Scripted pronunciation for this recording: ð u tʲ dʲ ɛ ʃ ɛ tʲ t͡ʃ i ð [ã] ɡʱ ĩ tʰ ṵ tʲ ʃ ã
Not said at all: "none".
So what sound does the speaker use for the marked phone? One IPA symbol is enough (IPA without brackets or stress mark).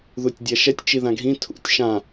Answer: ã